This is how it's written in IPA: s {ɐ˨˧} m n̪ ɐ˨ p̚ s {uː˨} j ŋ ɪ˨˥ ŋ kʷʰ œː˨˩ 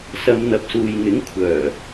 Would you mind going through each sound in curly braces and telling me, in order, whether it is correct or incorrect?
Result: correct, correct

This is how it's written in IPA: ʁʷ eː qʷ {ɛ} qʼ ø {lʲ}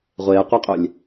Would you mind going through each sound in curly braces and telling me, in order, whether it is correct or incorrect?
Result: correct, correct

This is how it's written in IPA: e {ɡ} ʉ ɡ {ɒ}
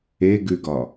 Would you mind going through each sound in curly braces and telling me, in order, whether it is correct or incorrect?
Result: correct, correct

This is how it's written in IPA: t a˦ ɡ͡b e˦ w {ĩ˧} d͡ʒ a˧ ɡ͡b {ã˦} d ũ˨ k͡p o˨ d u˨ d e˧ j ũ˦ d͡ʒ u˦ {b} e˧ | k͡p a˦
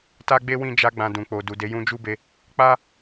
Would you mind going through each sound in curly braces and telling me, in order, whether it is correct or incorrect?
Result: correct, incorrect, correct

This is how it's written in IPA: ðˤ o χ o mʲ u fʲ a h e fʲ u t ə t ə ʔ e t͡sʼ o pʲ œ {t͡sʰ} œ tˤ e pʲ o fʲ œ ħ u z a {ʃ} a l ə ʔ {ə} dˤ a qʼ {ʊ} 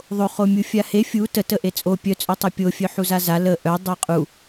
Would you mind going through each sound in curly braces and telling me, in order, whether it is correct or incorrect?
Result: incorrect, incorrect, incorrect, incorrect

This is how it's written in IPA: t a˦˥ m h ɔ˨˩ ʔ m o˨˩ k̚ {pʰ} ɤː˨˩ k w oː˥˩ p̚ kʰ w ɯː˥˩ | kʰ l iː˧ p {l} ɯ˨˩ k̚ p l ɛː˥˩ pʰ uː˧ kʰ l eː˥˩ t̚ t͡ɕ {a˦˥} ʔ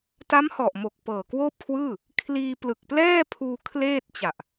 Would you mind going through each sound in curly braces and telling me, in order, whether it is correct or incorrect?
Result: incorrect, correct, incorrect

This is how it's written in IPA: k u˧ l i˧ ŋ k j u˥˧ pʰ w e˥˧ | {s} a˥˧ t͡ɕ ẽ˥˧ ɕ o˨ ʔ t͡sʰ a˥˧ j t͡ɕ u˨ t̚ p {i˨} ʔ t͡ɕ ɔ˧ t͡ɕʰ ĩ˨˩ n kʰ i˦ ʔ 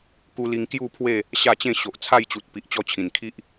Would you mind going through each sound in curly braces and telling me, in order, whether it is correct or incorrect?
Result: incorrect, correct

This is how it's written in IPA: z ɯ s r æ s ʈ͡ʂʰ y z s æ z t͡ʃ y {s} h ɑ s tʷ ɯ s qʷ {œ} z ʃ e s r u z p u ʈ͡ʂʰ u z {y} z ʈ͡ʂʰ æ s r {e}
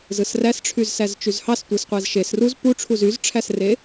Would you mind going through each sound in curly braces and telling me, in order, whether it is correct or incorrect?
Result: incorrect, incorrect, correct, correct

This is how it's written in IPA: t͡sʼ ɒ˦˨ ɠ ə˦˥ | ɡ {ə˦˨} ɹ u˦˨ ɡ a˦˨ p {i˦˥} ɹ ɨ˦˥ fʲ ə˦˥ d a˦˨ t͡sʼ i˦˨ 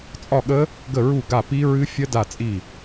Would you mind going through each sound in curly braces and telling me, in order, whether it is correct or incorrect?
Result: correct, correct

